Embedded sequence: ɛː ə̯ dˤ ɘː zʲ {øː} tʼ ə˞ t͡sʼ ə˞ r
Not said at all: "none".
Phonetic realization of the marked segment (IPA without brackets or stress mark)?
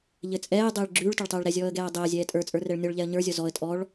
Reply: ɛː